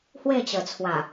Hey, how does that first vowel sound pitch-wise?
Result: falling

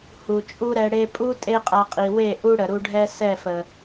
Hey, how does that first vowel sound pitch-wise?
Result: low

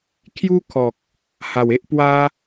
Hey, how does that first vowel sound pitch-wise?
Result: high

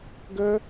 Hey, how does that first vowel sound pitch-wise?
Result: high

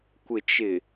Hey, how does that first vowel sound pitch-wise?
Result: low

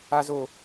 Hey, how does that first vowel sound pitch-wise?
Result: low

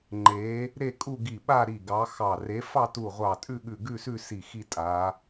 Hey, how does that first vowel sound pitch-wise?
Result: rising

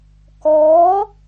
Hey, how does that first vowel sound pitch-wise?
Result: rising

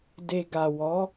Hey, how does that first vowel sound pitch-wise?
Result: low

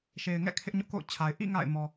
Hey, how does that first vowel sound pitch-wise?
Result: low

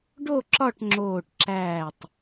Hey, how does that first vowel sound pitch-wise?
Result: falling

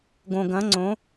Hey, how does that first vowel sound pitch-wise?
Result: low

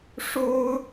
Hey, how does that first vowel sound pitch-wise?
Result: high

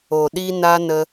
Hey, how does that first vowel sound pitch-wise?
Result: low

